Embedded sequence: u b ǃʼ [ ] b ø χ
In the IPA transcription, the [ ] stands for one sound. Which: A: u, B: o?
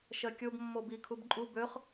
A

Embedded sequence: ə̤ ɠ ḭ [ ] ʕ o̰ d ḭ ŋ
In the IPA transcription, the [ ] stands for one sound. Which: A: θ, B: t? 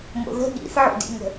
A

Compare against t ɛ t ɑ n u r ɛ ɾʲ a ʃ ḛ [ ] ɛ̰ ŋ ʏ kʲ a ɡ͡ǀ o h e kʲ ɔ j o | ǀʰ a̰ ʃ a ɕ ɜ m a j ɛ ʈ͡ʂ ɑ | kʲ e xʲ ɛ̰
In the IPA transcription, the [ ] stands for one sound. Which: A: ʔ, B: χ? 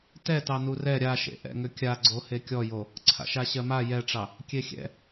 A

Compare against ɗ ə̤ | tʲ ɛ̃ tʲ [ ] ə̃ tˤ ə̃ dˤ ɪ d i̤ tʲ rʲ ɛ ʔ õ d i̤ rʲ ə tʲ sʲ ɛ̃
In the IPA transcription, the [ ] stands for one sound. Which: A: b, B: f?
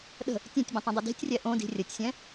A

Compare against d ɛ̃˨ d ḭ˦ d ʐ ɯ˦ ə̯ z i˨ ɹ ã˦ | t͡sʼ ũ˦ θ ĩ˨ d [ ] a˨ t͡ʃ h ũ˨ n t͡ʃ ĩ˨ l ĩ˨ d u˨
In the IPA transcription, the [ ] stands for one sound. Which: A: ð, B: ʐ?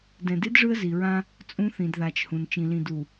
A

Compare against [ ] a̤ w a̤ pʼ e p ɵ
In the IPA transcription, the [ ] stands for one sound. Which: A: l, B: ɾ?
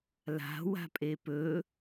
A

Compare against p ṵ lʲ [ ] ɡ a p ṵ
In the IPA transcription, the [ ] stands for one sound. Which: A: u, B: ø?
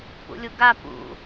A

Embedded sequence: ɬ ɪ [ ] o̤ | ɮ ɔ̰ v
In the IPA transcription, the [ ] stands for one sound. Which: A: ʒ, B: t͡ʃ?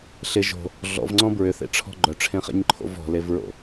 A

